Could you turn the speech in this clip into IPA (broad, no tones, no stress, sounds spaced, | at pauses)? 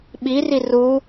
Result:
ɓ i r i r u